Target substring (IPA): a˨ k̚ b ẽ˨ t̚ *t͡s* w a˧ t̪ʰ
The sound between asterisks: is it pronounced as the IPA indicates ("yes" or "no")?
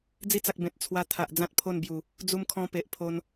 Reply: no